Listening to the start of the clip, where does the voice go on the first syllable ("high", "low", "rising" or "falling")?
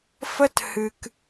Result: high